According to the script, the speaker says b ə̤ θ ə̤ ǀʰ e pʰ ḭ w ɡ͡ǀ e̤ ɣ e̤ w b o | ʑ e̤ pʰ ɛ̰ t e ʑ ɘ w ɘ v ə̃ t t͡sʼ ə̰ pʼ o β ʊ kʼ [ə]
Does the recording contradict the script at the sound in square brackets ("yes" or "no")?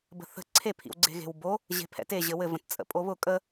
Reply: no